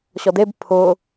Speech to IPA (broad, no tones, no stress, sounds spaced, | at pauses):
ɕ ɔ d e b pʰ ʊ